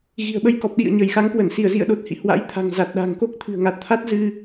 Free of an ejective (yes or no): yes